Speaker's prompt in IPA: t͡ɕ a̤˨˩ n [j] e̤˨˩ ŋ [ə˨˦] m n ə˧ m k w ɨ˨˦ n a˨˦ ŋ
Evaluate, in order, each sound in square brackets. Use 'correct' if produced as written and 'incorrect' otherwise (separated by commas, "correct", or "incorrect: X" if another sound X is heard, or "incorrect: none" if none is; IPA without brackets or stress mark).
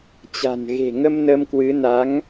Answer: incorrect: ɣ, incorrect: ə˧